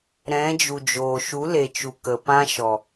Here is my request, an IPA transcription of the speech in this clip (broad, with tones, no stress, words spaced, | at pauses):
ɾɛ̃˨˦d͡ʒu˨d͡ʒoː˨ ʃu˨˦le˨t͡ʃu˨ kə˨pã˦ ʃɔ˨